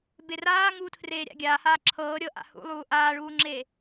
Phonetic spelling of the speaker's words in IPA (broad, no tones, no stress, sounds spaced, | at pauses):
b e r aː ŋ uː tʰ r eː ɾʲ a̰ ɡʲ aː h aː ǁʰ ɤː ɾʲ ɤ ʔ a̰ h ṵ lˠ uː ʔ aː ɭ uː ŋ͡ǁ e